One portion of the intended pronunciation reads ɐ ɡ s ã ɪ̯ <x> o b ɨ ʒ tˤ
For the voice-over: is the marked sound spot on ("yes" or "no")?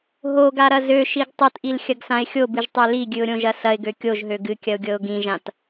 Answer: no